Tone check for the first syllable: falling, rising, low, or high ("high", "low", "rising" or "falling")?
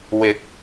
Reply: rising